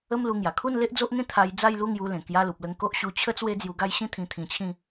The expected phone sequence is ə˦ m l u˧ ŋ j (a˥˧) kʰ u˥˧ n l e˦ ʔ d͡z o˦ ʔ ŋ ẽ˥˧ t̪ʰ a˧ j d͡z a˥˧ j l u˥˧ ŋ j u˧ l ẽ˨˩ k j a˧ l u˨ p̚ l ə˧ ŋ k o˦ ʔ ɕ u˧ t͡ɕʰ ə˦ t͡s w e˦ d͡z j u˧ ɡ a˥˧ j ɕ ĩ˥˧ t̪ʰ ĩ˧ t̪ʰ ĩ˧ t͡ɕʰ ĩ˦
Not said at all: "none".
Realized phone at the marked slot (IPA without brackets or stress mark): a˨˩